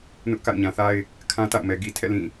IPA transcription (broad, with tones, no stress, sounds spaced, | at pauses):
n ʊ˦ ʔ k a̰˦˨ ʊ̯ ɲ ã˨ θ a˦ ɪ̯ | kʰ ã˦ t a̰˦˨ ʊ̯ m ɛ˨ ɡ i˨ tʰ ɛ̰˦˨ l ĩ˦˨